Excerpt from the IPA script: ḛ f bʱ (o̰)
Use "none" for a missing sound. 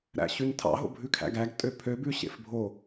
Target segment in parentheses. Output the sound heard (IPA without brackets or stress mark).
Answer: o